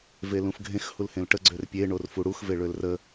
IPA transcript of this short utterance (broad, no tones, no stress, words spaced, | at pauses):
velũfɡʱẽx hulhẽlʈə ɡ͡ǀørpʲe ɳorfuɽux veɭølrə